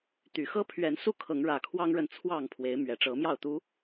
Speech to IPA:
t̪y˨˩xɤ˦ pʰɥɛ˨˦nsu˥˨kʰɤ˨˦ŋ ɻä˨˩kʰwɑ˦ŋɻə˨nt͡sʰwɑ˥˨ŋ pʰwe˨˦ɪ̯ mɥɛ˨˩ʈ͡ʂɤ˨˦mjɑ˥˨ʊ̯t̪u˨˦

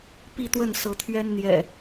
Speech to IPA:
pi˥˨t̪wə˥˨n sɤ˨˦t̪ʰɥɛ˦n n̪jɛ̰˨˩

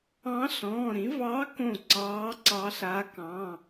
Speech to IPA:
ɑ̃˧˥ɬɔ̃ː˩˧˩ɾĩ˩˥ vɑ˧˥kõ˧˩ ǀɑː˧˥ǀɑ˧˥ɬa˧˥ kɑ̃˩˧˩

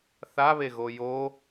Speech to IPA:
θaβeɣo jo

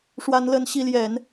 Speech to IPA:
ʂwa˦nlə˦nɕi˦ljɛ˨˦n

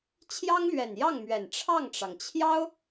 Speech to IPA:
t͡ɕʰjɑ˥ŋlɥɛ˨˩njɑ˥˩ŋmɥɛ˨˩n ʈ͡ʂʰɑ˥˩ŋʈ͡ʂɑ˩ŋt͡ɕʰjɑ˥ʊ̯

